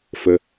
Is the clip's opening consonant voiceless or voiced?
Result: voiceless